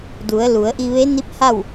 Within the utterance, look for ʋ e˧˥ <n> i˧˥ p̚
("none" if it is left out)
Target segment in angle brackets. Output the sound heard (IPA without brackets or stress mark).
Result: n